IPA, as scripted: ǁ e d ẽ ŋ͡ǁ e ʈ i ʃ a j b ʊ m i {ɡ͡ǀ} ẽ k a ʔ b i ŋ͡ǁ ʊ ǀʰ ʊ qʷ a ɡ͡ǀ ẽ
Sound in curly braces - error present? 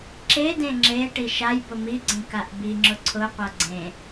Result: no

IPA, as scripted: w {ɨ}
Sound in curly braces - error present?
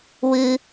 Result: no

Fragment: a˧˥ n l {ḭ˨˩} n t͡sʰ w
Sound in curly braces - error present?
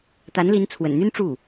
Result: yes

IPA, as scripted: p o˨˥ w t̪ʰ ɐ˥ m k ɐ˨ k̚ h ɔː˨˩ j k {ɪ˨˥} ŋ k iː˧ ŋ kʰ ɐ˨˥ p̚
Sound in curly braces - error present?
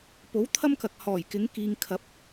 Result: no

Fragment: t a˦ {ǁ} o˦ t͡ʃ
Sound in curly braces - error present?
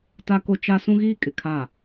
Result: yes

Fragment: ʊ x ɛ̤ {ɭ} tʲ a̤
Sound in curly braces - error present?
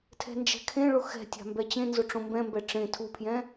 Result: yes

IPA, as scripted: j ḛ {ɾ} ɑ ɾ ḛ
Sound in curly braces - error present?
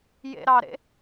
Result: no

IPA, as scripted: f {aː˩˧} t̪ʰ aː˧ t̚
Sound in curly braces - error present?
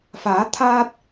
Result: no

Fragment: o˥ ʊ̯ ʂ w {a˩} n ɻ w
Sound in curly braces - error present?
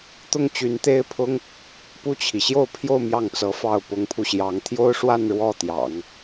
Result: yes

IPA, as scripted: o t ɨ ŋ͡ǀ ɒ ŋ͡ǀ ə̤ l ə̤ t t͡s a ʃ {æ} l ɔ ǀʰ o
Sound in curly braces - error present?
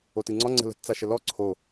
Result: yes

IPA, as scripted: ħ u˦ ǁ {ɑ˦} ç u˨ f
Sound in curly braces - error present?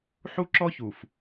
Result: yes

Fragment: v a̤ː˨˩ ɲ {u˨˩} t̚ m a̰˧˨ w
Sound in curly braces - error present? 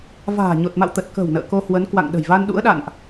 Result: yes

